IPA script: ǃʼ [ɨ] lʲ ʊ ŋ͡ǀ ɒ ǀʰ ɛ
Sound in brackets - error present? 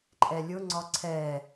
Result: yes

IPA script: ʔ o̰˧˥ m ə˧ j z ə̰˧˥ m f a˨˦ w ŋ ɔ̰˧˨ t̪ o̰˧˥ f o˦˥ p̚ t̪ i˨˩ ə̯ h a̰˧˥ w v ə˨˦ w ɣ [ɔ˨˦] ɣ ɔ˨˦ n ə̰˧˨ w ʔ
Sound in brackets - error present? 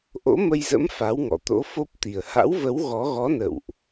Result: no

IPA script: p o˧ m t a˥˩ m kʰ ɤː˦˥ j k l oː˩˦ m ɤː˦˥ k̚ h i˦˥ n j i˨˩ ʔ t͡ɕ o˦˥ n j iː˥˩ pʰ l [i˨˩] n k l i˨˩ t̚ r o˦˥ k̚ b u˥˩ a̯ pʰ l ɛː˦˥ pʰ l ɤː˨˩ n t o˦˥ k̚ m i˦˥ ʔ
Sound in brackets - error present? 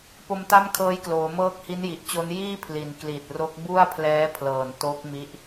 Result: no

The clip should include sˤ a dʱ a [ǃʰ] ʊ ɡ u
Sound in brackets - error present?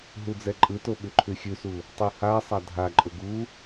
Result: yes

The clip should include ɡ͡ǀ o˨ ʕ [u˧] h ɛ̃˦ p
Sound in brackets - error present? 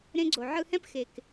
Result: yes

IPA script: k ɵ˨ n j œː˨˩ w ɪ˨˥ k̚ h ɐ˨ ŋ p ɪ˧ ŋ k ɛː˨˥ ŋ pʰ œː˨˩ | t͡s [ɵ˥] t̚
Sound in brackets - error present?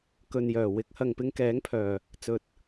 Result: yes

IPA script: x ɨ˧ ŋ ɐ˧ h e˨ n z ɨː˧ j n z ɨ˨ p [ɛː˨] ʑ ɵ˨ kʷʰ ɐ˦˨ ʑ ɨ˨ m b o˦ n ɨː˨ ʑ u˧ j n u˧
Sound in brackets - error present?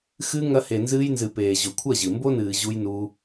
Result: yes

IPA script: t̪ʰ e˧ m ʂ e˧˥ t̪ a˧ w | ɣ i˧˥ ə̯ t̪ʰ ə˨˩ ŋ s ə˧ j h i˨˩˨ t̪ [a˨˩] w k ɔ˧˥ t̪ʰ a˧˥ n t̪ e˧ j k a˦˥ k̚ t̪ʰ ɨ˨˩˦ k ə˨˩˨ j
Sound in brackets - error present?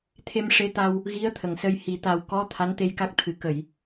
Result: no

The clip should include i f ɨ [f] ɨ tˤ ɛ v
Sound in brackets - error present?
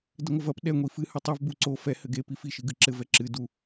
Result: yes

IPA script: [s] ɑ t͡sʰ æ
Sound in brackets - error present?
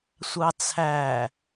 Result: yes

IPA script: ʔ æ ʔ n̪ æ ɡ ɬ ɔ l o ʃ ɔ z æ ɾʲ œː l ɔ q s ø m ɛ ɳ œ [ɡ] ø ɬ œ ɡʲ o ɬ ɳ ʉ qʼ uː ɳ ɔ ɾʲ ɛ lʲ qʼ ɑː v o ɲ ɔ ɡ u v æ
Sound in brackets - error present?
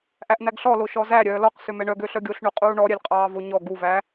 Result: no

